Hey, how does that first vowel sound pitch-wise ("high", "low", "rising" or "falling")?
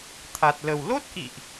low